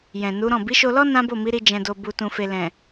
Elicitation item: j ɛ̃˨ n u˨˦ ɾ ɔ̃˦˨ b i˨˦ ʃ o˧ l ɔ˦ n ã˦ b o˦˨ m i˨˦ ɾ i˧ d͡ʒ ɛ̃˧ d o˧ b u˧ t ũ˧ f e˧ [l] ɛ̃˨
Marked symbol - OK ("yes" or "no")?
yes